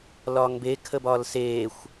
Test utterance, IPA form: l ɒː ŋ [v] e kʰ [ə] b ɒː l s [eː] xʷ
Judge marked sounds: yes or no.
no, yes, yes

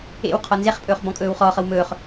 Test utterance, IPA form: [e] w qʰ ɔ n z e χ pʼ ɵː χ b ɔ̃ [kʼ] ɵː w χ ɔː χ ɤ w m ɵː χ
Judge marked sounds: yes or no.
no, yes

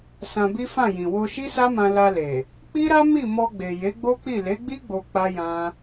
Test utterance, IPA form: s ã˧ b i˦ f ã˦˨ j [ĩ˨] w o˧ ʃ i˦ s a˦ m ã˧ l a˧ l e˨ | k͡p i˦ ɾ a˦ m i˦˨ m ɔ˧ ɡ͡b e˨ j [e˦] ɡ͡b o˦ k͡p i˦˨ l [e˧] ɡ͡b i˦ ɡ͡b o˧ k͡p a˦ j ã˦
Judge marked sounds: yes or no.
yes, no, no

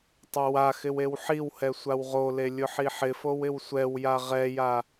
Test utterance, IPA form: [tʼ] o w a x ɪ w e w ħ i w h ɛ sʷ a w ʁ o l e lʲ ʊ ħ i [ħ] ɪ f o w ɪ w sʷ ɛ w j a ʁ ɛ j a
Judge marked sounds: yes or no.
no, yes

